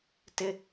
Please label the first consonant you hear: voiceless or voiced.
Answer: voiceless